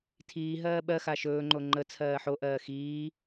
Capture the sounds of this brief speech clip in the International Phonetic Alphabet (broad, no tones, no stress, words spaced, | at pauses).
tʰiː ɦɜːɓɜxa ʃɵːŋ͡ǃo ŋ͡ǃə t͡sʰɜːħoʔɜː xiː